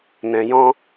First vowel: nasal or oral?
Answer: nasal